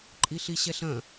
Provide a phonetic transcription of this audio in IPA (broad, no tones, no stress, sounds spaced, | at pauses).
ǃʼ i ɬ i ɕ ɛ ɬ ɐ̃